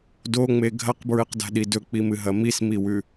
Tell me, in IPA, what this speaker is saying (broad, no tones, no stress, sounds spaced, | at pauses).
d o ŋ͡m e ɡʱ ɐ q b ɹ ɨ q d a̤ ɗ i d ɵ k͡p i m ɨ ɦ ɐ m i s m i w ʉ